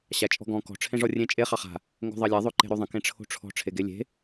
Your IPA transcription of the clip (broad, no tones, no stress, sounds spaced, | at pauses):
ɕ a t͡ʃʼ ɔ̤ ɡ ɔ̃ k ɔ̤ ʈ͡ʂʰ ẽ ʐ ɔ rʲ ẽ t͡ʃʼ e χ ɑ χ a̤ | ŋ ɡ o̤ ðˤ ɑ lʲ a ðˤ o ǃ e̤ ɾ o ðˤ ə̃ k ẽ ʈ͡ʂʰ o̤ ʈ͡ʂʰ ɔ̤ ʈ͡ʂʰ e ɡ e lʲ e̤